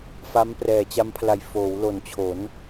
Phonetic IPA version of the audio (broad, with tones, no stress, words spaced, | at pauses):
fa˦˥mprɛː˨˩t͡ɕa˦˥mpʰla˨˩j foː˩˦wlo˨˩nt͡ɕʰo˩˦n